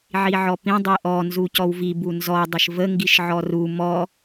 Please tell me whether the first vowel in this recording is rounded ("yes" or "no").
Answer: no